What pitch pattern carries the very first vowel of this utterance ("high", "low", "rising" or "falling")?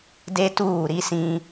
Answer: high